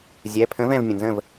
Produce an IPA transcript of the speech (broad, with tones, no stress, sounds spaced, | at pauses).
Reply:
zʲ ɛ˩˧˩ pʰ ə̃˨˥ v ɛ̃˧˩ v mʲ ə̃˩ n z ə̃˥˩ v